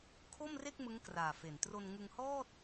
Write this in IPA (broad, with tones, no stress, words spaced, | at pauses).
kʰo˥˩mre˥˩k̚ mɯ˦˥ŋkraː˨˩fe˨˩n tro˧nŋɯ˧ŋhɔː˥˩t̚